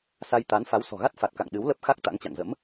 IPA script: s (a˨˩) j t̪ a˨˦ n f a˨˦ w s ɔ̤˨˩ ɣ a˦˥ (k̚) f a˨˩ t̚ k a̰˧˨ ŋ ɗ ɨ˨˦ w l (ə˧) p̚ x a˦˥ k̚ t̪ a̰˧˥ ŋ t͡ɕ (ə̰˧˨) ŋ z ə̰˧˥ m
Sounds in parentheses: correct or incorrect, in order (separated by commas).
incorrect, incorrect, incorrect, incorrect